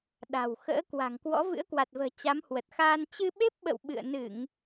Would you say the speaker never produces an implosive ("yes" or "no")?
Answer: no